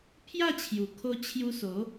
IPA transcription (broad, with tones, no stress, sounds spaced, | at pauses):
pʰ j a˥˧ t͡ɕʰ j u˨˩ kʰ o˧ t͡ɕʰ j u˧ s o˨˦